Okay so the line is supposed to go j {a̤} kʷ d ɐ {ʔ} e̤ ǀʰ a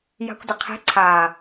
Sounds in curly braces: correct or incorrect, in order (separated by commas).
correct, incorrect